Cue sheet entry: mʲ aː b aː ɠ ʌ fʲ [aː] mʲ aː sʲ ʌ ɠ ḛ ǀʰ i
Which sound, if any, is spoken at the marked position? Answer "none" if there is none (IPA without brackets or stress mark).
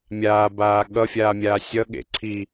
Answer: aː